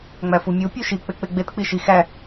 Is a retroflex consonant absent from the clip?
yes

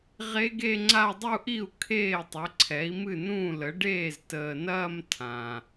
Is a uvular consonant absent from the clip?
no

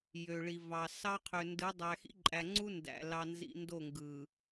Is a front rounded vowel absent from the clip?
no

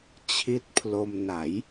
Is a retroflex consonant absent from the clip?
yes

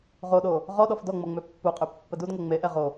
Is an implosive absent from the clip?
no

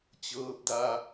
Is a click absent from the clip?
yes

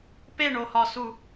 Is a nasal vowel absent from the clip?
yes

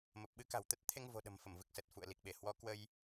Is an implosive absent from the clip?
no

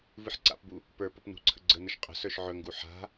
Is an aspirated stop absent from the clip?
no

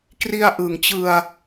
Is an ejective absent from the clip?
yes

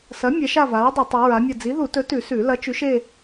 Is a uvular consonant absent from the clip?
yes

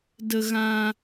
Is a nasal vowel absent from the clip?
no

